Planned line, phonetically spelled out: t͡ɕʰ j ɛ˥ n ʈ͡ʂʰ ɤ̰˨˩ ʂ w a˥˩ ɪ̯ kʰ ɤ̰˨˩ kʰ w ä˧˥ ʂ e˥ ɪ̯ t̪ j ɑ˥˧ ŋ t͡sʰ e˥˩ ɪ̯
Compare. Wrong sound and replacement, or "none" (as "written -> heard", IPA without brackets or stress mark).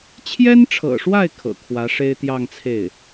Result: none